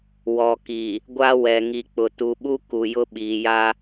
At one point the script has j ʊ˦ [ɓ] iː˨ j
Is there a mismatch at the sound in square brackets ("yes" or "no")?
no